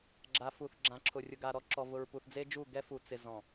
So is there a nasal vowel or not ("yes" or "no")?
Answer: yes